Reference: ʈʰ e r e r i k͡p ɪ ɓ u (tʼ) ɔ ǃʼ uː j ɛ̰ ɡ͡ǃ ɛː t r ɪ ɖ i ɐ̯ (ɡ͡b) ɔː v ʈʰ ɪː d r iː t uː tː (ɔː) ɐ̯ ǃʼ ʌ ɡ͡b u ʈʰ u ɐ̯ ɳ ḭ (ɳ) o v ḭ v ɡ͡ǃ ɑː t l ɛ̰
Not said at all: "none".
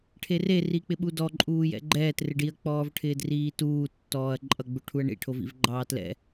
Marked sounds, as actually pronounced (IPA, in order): d, k͡p, ɔː, ʈʰ

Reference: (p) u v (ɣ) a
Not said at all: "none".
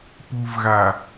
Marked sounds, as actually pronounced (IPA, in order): p, ɣ

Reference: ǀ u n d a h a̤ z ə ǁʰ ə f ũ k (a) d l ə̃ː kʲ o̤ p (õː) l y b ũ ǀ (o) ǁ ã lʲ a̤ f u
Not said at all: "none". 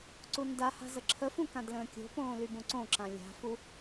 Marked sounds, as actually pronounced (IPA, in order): ã, õː, õ

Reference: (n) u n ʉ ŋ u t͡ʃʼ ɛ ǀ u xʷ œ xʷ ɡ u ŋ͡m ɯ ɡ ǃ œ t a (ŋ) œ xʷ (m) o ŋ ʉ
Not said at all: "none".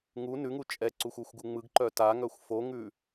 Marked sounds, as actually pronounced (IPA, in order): ŋ, ŋ, f

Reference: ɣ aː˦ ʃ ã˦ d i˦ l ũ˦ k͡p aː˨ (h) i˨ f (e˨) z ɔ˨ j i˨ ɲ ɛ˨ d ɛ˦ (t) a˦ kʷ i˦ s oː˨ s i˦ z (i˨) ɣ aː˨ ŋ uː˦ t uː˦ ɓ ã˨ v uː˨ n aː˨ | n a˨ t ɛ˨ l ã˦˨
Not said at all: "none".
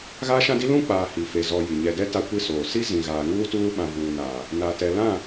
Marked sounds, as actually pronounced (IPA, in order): h, e˨, t, ĩ˨

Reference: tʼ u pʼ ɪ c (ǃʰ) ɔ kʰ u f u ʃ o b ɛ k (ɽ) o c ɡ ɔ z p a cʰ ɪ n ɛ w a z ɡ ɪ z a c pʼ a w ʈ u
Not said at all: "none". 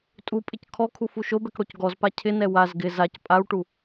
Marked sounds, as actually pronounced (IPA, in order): kʰ, ɽ

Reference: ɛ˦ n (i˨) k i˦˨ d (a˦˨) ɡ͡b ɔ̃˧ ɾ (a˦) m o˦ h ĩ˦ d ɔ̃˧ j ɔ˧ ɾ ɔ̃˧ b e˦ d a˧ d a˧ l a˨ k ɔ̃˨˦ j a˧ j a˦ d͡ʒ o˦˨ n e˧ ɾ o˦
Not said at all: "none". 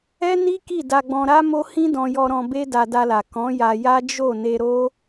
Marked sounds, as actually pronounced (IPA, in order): i˦, a˧, a˦

